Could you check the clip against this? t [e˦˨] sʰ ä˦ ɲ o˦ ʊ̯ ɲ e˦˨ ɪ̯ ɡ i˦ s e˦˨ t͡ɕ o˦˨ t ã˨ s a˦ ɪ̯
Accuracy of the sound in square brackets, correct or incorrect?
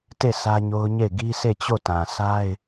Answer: correct